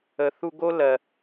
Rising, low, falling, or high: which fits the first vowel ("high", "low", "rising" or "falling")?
low